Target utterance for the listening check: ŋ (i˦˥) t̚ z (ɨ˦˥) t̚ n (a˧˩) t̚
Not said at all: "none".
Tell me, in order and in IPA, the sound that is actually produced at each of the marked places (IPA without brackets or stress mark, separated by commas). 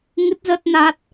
ɨ˦˥, ə˦˥, a˦˥